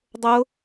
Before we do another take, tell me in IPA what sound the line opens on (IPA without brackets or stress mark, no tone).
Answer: dˤ